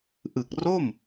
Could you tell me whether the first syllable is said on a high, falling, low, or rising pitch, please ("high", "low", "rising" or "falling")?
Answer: low